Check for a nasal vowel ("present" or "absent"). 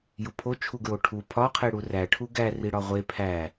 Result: absent